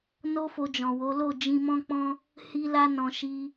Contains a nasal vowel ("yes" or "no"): yes